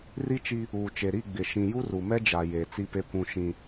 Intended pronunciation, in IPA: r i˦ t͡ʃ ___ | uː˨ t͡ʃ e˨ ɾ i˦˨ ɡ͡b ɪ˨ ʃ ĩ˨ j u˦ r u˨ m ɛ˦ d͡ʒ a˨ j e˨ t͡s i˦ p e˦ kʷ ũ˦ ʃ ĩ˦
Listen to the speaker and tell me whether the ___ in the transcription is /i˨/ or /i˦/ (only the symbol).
i˦